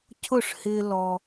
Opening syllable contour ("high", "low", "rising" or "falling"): falling